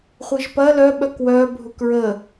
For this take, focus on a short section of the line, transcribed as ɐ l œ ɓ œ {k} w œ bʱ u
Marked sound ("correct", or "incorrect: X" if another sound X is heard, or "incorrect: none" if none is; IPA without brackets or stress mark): correct